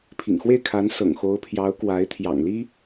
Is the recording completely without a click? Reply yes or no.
yes